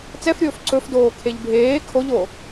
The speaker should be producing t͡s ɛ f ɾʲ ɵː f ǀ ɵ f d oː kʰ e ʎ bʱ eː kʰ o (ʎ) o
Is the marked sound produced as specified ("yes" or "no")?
yes